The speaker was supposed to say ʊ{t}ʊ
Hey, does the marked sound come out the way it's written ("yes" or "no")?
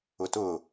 yes